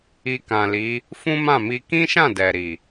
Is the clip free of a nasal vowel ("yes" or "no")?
no